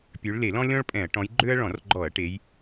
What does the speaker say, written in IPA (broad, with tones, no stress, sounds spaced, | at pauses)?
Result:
pʲ ø˨˦ ɭ l e˧˩˧ l ɔ̃˥ lʲ ɔ̃˥ ɭ pʼ ɛ̃˧˩˧ ɐ̯ ʈ ɔ̃˨˦ j ɡ͡ǃ ø˥ ɐ̯ ɭ ɔ̃˧˩˧ r ɡ͡ǃ ɔ˧˩˧ ɐ̯ ʈ e˨˦ j